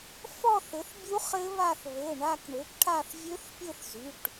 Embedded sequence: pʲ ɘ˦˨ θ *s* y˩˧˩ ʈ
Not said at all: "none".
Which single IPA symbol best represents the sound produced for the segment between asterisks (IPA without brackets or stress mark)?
z